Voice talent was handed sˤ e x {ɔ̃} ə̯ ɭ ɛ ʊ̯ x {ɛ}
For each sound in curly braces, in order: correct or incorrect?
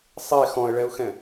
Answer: correct, incorrect

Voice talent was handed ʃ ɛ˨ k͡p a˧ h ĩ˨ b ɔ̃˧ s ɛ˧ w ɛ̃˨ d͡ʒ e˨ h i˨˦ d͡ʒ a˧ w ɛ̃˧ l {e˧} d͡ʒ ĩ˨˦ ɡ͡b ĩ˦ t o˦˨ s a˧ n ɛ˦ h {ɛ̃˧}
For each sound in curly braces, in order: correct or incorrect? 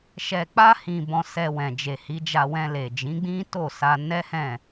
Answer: incorrect, incorrect

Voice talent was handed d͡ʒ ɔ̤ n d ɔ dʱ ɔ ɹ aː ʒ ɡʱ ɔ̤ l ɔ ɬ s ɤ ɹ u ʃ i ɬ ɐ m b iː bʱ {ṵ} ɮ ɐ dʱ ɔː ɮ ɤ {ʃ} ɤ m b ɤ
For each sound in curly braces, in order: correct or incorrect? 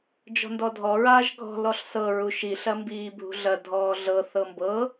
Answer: incorrect, incorrect

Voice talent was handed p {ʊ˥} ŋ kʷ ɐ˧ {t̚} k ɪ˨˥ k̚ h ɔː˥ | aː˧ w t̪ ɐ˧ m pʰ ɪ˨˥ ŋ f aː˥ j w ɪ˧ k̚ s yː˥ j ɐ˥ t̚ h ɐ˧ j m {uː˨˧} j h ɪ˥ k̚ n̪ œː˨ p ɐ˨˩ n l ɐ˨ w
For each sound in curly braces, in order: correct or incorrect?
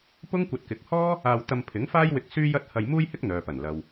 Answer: correct, correct, incorrect

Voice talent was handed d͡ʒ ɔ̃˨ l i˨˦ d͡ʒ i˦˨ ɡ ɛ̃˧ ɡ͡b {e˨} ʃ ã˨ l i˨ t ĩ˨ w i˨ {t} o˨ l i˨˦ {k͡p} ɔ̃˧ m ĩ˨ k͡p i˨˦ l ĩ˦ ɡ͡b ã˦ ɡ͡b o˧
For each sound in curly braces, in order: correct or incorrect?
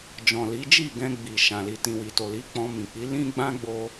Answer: incorrect, correct, correct

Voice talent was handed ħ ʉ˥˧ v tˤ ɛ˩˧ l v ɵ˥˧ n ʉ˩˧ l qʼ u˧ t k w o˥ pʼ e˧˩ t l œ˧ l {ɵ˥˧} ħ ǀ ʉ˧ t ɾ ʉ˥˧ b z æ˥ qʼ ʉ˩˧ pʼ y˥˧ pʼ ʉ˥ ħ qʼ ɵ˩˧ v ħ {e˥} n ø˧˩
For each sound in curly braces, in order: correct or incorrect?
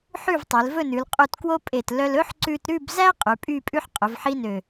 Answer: incorrect, incorrect

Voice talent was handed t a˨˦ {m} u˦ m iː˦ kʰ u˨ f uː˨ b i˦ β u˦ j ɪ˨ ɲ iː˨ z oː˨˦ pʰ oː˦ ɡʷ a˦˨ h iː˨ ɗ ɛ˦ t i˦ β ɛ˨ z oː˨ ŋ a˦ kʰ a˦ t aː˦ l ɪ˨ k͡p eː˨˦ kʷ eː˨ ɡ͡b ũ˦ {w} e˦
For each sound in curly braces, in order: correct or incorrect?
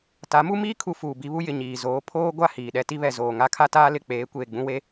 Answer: correct, correct

